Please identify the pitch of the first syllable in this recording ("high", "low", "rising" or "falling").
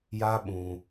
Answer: high